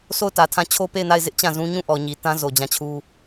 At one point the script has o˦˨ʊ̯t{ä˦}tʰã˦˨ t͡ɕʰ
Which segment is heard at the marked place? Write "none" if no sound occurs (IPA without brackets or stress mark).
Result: ä˨